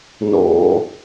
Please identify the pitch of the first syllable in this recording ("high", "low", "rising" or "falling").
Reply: low